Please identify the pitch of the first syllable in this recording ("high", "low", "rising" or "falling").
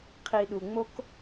low